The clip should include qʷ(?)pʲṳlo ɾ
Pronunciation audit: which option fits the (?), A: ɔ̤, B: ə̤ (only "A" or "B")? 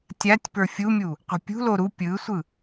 B